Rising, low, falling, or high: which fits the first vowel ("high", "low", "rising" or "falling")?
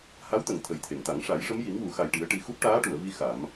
rising